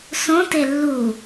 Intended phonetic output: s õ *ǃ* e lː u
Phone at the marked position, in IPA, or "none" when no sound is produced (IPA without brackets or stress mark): t